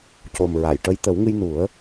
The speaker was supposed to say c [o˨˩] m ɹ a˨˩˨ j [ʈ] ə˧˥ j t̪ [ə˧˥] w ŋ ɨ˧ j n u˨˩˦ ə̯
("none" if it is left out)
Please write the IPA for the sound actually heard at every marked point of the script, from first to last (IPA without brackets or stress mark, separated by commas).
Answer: o˨˩, ʈ, ə˨˩˦